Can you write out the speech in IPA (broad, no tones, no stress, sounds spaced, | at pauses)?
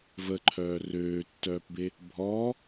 v ə ǃʰ œː r øː tː œː p b e | bʱ ɔː